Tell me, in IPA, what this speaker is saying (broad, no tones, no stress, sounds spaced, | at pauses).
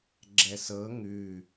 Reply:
ɡ͡ǁ ɛ s ɤ ŋ ʉ